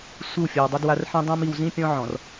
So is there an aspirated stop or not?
no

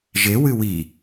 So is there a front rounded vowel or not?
no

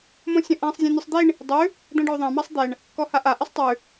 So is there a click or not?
no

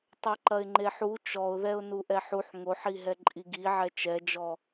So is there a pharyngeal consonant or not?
yes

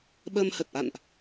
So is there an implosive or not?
yes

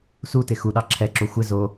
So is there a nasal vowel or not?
no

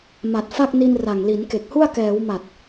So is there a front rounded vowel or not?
no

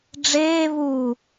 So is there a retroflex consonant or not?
yes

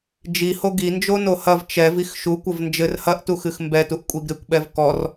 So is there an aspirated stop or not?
no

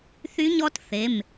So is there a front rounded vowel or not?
yes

